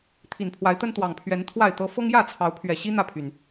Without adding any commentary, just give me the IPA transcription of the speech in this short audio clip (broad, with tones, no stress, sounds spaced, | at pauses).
t̪ʰ i˨˩ n pʰ w a˨˦ ɪ̯ t̪ ə˦ n t̪ w ɑ˨˩ ŋ pʰ ɥ ɛ˨˦ n t̪ʰ w a˥˨ ɪ̯ t̪ ɤ˦ f ɤ˦ ŋ j ä˥˨ t͡sʰ ɑ˨˦ ʊ̯ pʰ ɥ ɛ˨˩ ɕ i˦ n̪ ä˥˨ pʰ y˨˩ n